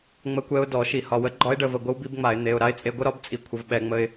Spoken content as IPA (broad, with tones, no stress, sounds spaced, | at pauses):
ŋ͡m ə˦˥ kʷ ɛ˦˥ ʊ̯ d ɔ˧˩˧ ʃ i˧˩˧ h ɒ˩˧˩ w ə˦˥ ɡ͡ǃ ɒ˦˥ ɪ̯ ɖ ə˧˩˧ v ə˩˧˩ ɡʷ ə˦˥ w b i˩˥ b ŋ͡m a˧˩˧ ɪ̯ n̪ e˩˧˩ ʊ̯ ɾ a˦˥ ɪ̯ t͡sʼ e˧ ɡʷ ə˦˥ ɾ ɒ˩˥ b t͡sʼ i˧ kʷʰ ə˧˩˧ v ɓ ɛ˧˩˧ ŋ͡m ə˧ ɪ̯